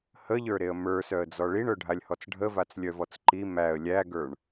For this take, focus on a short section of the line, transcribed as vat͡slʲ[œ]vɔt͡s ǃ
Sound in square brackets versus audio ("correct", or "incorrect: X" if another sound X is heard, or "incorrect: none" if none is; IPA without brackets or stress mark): correct